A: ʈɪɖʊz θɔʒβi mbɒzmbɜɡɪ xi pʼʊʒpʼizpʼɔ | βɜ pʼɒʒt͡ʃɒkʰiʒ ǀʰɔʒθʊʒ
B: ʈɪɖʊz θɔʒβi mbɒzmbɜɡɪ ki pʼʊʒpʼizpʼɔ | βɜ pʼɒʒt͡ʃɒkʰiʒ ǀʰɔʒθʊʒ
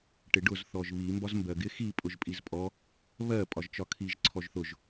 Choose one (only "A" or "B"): A